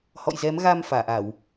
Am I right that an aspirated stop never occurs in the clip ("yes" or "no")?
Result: yes